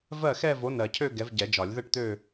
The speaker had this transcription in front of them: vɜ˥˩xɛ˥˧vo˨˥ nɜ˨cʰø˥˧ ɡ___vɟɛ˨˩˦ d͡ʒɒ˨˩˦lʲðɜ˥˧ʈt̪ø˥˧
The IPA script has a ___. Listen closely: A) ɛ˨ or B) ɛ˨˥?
B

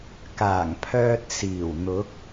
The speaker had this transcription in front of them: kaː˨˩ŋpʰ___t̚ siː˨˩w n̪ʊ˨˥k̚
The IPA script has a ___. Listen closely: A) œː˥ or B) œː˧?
B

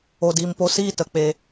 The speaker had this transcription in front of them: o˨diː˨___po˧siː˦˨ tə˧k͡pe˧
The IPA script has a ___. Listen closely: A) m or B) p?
A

